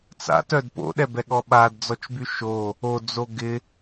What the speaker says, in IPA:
t͡s a̰ t œ d p o̰ ɗ ɛ b ɛ ɠ ɔ ɓ a d d͡z ɔ t͡ʃ b y ʃ o | o d͡z o ɡ ɪ

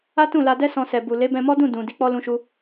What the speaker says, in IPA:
a˦ t ũ˦˨ l a˧ d ɛ˦ s ɔ̃˧ s ɛ˨ b u˨ l e˨˦ b ɛ̃˧ m ɔ˦ d ũ˦˨ d ũ˨ d i˧ k͡p ɔ˦ l ũ˧ ʃ u˧

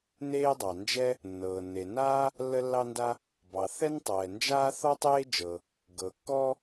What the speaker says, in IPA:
n eː˥ dˤ ɑ˩ n d͡ʒ ɛ˥ | nː ɤː˩ nː e˩ n aː˥ | lː ə˥ lː ɑ˥ n d a˥ | b ɑ˩ θ ɛ˥ n tˤ ɛː˩ n d͡ʒ aː˥ θ ɔ˥ tˤ eː˥ d͡ʒ ɤ˩ | ɡ ɤ˩ kː ɔ˥

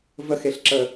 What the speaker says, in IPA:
v ə x e ɬ ǁ ə

